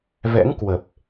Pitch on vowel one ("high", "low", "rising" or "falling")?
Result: rising